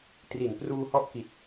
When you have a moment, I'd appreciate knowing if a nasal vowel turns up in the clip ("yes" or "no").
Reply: no